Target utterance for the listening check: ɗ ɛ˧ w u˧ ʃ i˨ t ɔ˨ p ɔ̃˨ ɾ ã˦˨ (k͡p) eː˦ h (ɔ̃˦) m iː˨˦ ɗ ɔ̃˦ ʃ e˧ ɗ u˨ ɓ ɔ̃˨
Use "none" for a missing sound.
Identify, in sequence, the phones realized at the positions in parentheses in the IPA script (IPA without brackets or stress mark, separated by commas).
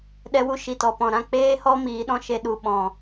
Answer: k͡p, ɔ˦